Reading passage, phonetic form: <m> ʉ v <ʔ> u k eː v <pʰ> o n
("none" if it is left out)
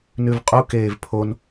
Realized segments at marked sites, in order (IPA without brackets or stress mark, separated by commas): n, qʼ, pʰ